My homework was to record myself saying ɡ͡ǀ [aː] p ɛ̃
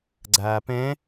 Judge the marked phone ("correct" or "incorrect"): correct